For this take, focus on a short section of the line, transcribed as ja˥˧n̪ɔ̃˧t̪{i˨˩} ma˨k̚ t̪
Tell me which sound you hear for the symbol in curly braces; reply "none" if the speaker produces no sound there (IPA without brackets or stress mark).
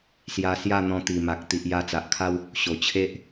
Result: i˨˩